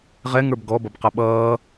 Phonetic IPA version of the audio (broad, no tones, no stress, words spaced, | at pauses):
ʁɛŋə˞b ɡɔbʌbqʌ ɓʌː